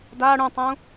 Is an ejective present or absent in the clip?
absent